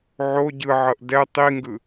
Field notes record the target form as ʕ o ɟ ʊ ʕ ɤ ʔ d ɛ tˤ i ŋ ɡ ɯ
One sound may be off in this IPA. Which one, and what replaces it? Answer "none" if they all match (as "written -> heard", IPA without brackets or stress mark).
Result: ʊ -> ɯ